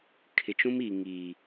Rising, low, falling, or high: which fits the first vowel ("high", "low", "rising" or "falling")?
low